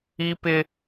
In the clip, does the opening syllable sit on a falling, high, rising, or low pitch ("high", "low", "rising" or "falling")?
high